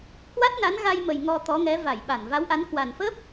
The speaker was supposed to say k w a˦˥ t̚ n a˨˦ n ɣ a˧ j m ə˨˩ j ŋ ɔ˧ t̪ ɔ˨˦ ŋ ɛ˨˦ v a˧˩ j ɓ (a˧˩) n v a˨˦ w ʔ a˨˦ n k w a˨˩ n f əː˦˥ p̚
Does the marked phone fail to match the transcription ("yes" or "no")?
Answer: no